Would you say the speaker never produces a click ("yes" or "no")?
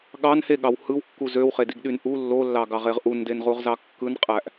yes